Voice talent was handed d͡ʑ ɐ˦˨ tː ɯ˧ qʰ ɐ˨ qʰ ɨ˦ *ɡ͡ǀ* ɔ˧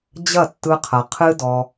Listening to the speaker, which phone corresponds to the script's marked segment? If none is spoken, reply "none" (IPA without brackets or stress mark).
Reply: d